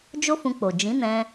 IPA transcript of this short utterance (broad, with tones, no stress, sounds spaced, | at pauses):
d͡ʒ o˦ f ũ˧ k͡p o˨ d͡ʒ ĩ˨˦ n ɛ̃˧